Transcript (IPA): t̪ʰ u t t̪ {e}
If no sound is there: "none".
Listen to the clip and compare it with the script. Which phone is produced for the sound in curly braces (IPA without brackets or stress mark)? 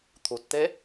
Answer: e